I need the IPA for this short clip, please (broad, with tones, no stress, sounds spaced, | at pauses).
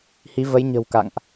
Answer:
h i˨˦ v ə˨˦ j ɲ ə̤˨˩ w k a̰˧˨ ŋ ʔ